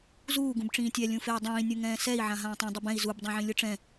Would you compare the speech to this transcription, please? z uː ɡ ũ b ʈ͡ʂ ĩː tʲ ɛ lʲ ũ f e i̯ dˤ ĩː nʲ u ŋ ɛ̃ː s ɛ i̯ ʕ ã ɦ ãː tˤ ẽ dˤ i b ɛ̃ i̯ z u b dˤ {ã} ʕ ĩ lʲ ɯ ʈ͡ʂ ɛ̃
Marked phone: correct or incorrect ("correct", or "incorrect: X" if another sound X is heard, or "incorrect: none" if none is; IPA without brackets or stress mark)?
correct